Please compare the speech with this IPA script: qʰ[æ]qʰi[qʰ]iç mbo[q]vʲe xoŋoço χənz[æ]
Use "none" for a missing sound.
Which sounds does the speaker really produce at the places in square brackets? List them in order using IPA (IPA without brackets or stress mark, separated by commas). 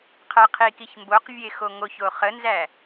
æ, k, q, æ